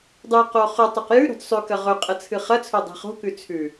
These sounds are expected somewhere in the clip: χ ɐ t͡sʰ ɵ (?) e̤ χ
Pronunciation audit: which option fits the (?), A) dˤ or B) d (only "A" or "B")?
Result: A